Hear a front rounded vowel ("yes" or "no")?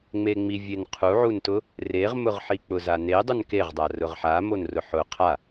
no